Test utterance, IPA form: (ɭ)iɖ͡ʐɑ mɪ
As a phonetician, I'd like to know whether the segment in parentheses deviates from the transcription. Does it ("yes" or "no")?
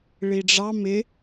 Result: no